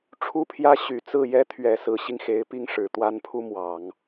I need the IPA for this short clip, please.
ʈ͡ʂʰ u˥ pʰ j ä˥ ɕ y˨˩ t͡s ɹ̩˥˩ j ɛ˥ t̪ʰ ɥ ɛ˨˩ s ɹ̩˧˥ ɕ i˧ ŋ x e˧˥ ɪ̯ p i˥ ŋ ʂ ɻ̩˨˩ t̪ w a˥ n pʰ u˥ m w ɑ˨˩˦ ŋ

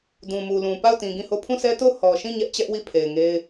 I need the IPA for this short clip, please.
d ũ˨ m u˨ l ũ˨ p a˦˨ ʊ̯ t ĩ˨ ɡ ĩ˦˨ h o˦˨ pʰ ũ˦˨ s ɛ˦ t o˦˨ ʊ̯ h ɔ˨ ʃ ĩ˦˨ ɲ ɛ˦ ʔ t͡ɕ ɛ˦ ʔ w i˦˨ pʰ e˨ ɪ̯ ŋ e˦ ɪ̯

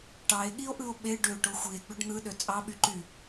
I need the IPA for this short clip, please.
ʈ ɑ e̯ ɠ i o̯ ʔ ɯ o̯ ɓ e ɖ ø ʈ o xʷ i e̯ ɡ͡b ø ɖ n̪ ɯ ɗ ø t͡sʼ ɑ ɓ y ǃ y

